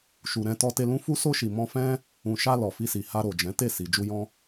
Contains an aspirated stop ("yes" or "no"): no